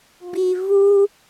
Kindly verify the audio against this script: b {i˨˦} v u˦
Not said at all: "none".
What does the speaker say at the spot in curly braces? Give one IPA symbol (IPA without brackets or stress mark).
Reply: i˨